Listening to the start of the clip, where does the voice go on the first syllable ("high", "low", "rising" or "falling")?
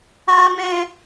low